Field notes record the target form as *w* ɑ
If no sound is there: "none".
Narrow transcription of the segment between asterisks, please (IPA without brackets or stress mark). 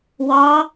w